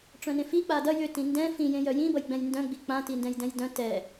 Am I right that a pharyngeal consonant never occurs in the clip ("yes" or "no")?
yes